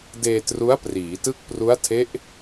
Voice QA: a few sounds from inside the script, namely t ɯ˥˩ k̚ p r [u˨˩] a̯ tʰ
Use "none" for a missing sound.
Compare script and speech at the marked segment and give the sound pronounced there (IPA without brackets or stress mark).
u˦˥